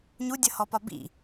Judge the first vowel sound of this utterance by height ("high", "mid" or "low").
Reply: high